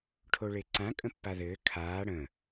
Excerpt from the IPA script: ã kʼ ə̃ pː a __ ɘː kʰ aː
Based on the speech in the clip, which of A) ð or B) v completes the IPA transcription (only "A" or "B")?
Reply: A